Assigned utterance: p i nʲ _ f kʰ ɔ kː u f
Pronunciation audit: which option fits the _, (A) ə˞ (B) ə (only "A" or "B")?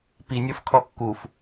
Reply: A